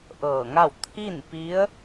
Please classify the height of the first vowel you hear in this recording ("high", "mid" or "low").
mid